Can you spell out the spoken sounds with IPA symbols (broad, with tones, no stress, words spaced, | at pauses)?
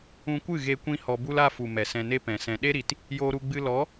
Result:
ũ˧kʷɨ˦˨ɣe˧ kʷĩ˦hɔ˧bu˦la˦ fu˨ mɛ˨sɛ̃˧ne˦ pɛ̃˨sɛ̃˧ ɗe˦ɾi˨t | joː˧ɾu˧ɡ͡bɨ˧ lɔ˨˦